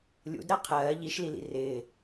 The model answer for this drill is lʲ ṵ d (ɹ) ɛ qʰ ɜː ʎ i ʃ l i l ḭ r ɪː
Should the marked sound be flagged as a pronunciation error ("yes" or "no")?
yes